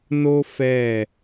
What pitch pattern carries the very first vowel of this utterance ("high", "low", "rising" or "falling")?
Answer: high